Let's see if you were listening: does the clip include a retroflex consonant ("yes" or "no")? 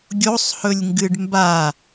yes